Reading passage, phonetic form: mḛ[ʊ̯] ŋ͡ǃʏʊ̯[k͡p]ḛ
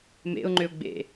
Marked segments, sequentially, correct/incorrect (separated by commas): correct, incorrect